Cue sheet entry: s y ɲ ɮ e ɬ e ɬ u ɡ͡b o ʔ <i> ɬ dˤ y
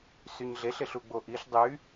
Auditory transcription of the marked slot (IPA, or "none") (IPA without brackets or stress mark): i